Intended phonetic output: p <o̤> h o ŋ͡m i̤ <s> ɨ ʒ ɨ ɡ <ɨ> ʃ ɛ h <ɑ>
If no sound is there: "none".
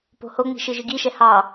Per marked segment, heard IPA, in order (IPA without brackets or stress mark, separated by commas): o̤, ʃ, i, ɑ